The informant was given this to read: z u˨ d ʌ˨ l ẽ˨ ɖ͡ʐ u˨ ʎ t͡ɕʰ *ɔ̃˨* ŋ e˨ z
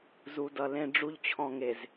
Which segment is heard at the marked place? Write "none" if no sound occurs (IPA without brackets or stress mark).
ɔ̃˨